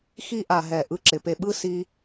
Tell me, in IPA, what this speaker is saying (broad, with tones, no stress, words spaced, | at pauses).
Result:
xi˧ʔa˨ɦɛ˨ ʔɯ˧ǁɪ˨pe˧ɓɯ˦ si˦